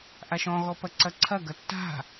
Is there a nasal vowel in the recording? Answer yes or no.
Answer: yes